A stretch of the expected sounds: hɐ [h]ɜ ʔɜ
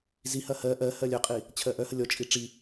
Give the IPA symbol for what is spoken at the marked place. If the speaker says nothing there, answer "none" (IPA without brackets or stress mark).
h